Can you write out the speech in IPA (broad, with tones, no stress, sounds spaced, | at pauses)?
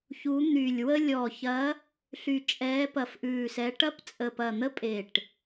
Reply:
ç u˨˦ n̪ y˨˩ lʲ w ə˦ lʲ ɔ˨˩ ç ɐ˨˦ | ɬ y˨˩ t͡ʃʼ ɛː˨˦ p ɐ˨˩ f ʔ ʉː˨˩ s ɛ˨˦ ʈ ɐ˦ p t͡sʼ ə˨˩ p ɐ˨˩ n̪ ə˦ pʼ e˨˩ ʈ